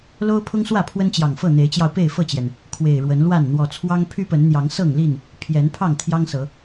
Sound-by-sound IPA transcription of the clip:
l o˦ ʊ̯ pʰ ʊ˦ ŋ s w ä˥˨ pʰ w ə˦ n t͡ɕ j ɑ˨˩ ŋ f ɤ˥˨ n̪ e˨˦ ɪ̯ t͡ɕ j ɑ˧ ʊ̯ p e˥˨ ɪ̯ f ɤ˥˨ t͡ɕ j ɛ˩ n | kʰ w e˨˩ ɪ̯ ɻ w ə˨˦ n l w a˥˨ n n̪ w ɔ˨˩ t͡sʰ w ɑ˦ ŋ pʰ y˦ p ə˨˦ n n̪ j ɑ˨˦ ŋ s ɤ˥˨ ŋ l i˥˨ n | pʰ j ɛ˨˦ n pʰ ɑ˥˨ ŋ t̪ʰ j ɑ˦ ŋ s ɤ˨˦

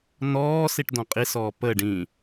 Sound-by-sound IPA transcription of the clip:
n ɔː s i ʈ d ɔ̃ qʼ i s ɔː p ə ɖ ĩ

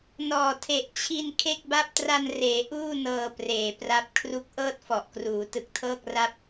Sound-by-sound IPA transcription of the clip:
n ɔː˨˩ tʰ e˨˩ ʔ t͡ɕʰ i˧ n kʰ e˥˩ k̚ b a˥˩ p̚ t r a˧ n r eː˩˦ ʔ uː˥˩ n ɤː˧ p r eː˨˩ p r a˥˩ p̚ kʰ r u˦˥ k̚ ʔ ɤː˥˩ t̚ f ɔ˨˩ ʔ k r uː˩˦ t ɯ˨˩ k̚ tʰ ɤː˥˩ k̚ r a˥˩ p̚

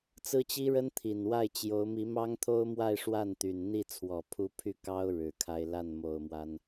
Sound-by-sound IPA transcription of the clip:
t͡s ɹ̩˥ t͡ɕ i˥ ɻ ə˥ n t̪ʰ i˨˩ n w a˥˩ ɪ̯ t͡ɕ j o˧˥ ʊ̯ m i˧˥ m ɑ˥ ŋ t̪ʰ o˥ ʊ̯ m w a˥˧ ɪ̯ ʂ w a˥˩ n t̪ y˨˩ n n̪ i˥˩ t͡sʰ w ɔ˨˩ pʰ u˧˥ pʰ y˥˩ k ɑ˥ ʊ̯ ɻ ɻ̩˨˩ kʰ a˥ ɪ̯ l a˥˩ n m o˨˩ ʊ̯ m w a˦ n

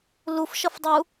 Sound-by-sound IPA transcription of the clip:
l u f ʃ ʌ f dˤ u

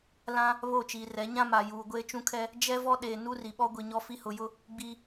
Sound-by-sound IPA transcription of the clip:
l ã˦ | β o˦˨ t͡ʃ iː˨ r ɛ˨˦ ɲ ã˦ m a˨ j uː˨ ɡʷ eː˦ t͡ʃ ũ˦ kʰ ɛ˦ | d͡ʒ ɛ˦ v ɔ˦ ɗ eː˨ n u˦ r i˨ ɓ ɔ˦ ɡʷ i˨ ɲ ɔ˦ f i˦ h ʊ˨ j ʊ˦ | ɡ͡b iː˨

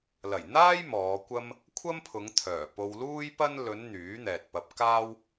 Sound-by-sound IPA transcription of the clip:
l ɐ˨˩ j n̪ aː˥ j m ɔː˨˧ kʷ ɐ˥ m | kʷʰ ɐ˥ m pʰ ʊ˨˧ ŋ t̪ʰ œː˨˩ p o˧ w l uː˥ j p ɐ˥ n l ɵ˨˧ n n̪ yː˨˥ n̪ ɛː˨ t̚ p ɐ˧ p̚ k aː˥ w

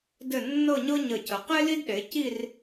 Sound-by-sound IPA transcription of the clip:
d ɘ˧˩ nː ɤ˥˧ ɲ ɤ˥ ɲ ə˧˩ cʰ ə˩˧ q e˥ l i˥ d ɗ e˩˧ c i˥˧ r

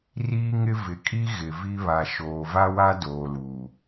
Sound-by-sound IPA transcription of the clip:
r iː˦ ŋ ɪ˦ v ɪ˨ kʼ i˦ ɣ ɪ˨ v i˦ β a˨ ʃ oː˨ v a˦ w a˦ d oː˨ l uː˨

